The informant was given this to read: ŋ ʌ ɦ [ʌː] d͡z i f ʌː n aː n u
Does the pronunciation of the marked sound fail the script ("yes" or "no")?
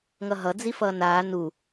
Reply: yes